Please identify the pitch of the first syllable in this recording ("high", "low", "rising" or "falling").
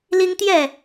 high